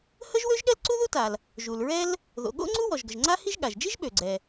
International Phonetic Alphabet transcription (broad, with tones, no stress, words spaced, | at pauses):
hə˥ʒwø˥ʒ ɠɛ˥lǀu˥ðu˥ta˩l | ʒu˩lɹɛ˥l | ðo̰˩ɠo̰˥ŋ͡ǀu˥ wɔ˩ʒɡə˩ʒŋ͡ǀa˥hi˥ʒ ɠa˩ʒd͡ʒi˥ʒ ɓø˩ɡ͡ǀɛ˩